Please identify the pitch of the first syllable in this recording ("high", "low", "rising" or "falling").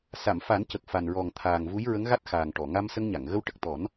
low